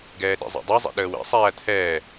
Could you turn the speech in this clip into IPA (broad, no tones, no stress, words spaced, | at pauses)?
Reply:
ɡɛːɗḭzˤɛ̰dˤi zˤɛ̰ɗəːwɛ̰ sˤæːt̪ʰɛː